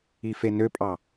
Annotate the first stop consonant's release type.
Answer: ejective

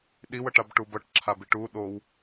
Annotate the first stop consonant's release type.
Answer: implosive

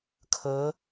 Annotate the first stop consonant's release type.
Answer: aspirated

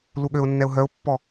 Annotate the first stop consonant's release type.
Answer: implosive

